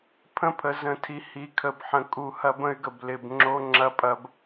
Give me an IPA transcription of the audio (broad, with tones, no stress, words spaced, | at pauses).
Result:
pʰə̃˦pʰə˨ zə̃˨tʰi˨ hi˨˦kʰə˨bħə̃˨ kʼu˨ hɐ˦bə̃˦y̯ɡə˨b lɪ˨bŋ͡ǁo˦ ŋ͡ǁɐ˦pʼɐ˦b